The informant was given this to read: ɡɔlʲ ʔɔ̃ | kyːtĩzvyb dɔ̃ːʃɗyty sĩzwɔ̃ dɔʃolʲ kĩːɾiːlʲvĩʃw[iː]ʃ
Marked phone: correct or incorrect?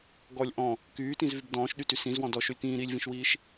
correct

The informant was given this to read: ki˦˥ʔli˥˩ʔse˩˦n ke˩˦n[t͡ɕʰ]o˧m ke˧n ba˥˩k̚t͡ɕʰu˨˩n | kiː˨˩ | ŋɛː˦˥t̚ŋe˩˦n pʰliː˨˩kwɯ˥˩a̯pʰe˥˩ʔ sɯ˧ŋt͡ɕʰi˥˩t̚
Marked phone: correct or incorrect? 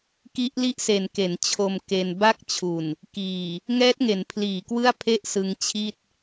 correct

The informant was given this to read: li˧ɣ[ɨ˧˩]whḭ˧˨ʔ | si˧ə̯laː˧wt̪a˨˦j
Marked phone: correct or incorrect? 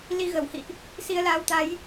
incorrect: ə˧˩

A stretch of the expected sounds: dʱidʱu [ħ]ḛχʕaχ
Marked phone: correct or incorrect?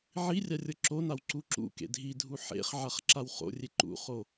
correct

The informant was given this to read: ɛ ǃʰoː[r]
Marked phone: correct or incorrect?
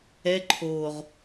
incorrect: ʁ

